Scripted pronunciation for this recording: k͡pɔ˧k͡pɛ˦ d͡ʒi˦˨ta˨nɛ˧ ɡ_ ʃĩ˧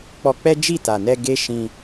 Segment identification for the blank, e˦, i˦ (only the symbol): e˦